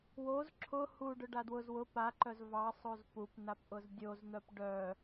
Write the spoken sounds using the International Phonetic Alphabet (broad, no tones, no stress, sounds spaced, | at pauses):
w o z ǁʰ ʊ h u ɖ ʊ ɖ a d w ʊ z w ʊ p a ǃ œ z v ɑ sˤ o z p u p n a p ʔ ʊ z dʲ o z n̪ œ p ɖ œ